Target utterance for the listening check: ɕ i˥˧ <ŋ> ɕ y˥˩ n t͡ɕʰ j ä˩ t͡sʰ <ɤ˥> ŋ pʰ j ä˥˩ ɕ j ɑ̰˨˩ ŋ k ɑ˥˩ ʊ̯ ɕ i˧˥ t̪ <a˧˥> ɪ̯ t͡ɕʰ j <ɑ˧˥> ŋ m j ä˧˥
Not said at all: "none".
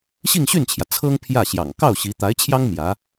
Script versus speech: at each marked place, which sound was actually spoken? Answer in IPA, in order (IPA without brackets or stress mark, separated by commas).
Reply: ŋ, ɤ˥, a˧˥, ɑ˥